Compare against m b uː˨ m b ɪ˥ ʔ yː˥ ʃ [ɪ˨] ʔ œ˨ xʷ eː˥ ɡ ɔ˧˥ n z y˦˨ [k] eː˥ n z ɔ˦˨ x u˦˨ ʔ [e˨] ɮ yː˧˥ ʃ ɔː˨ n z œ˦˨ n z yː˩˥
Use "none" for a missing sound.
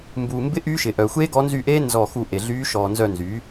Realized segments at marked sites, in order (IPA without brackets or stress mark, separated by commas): ɪ˨, ʔ, e˨